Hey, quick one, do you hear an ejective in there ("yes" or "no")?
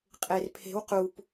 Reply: yes